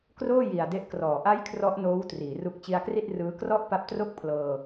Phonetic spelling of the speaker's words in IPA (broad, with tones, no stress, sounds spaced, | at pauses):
k r oː˥˩ j i˨˩ a̯ d e˦˥ ʔ k r ɔː˩˦ ʔ a˦˥ j kʰ r ɔ˦˥ ʔ n oː˦˥ w t r iː˩˦ r u˦˥ k̚ t͡ɕ i˧ a̯ k r i˥˩ t̚ r ɯː˦˥ k r ɔ˥˩ ʔ p a˦˥ p̚ t r o˥˩ k̚ pʰ l ɤː˧